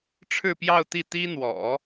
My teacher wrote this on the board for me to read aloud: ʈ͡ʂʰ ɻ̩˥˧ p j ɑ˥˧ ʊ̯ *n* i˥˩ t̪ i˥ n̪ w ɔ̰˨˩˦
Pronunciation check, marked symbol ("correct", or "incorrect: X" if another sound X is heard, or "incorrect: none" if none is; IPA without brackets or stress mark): incorrect: t̪